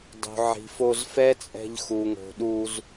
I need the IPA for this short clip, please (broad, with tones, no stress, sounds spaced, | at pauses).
dˤ o̤˨ ʕ i̤˨ f o˧ z f ɛ˦ t͡sʼ ɛ̤˧ ʎ x u˨ ŋ o̤˨ ɗ u˧ z